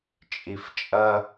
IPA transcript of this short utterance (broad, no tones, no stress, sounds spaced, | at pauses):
t͡ʃʼ i f t͡ʃʼ ɐ